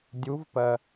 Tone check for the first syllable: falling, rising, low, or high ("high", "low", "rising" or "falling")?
rising